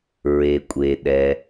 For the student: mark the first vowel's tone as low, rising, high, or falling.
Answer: low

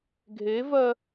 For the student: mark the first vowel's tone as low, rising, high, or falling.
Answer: rising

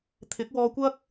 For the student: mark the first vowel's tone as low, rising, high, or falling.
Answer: rising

